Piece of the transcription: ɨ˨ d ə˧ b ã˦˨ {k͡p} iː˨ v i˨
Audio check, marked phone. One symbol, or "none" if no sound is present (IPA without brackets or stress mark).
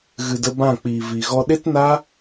k͡p